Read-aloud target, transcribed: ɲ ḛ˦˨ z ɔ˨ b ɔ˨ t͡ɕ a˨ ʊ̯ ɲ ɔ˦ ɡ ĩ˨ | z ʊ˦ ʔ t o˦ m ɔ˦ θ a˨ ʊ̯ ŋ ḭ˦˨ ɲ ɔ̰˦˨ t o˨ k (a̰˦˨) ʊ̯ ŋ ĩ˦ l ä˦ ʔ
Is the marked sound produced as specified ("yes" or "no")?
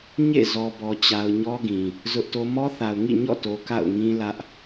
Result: yes